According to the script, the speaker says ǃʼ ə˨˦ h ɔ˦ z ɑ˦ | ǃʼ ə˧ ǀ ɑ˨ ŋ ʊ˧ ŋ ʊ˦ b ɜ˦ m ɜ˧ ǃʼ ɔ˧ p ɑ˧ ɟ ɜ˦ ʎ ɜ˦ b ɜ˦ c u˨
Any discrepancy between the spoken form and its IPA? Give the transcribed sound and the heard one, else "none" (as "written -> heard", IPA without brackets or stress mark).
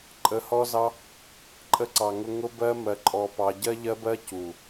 none